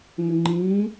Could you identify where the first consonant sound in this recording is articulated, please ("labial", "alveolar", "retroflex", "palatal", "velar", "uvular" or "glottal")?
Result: velar